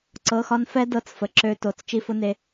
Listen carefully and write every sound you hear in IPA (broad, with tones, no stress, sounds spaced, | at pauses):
ǀ ɤ˩˧˩ x ɒ˧ n f ɛ˦˥ d ɤ˧ t͡s f ə˩ ǁ ø˧ t o˩˧˩ t͡s t͡ʃ i˧ f ʊ˦˥ n e˧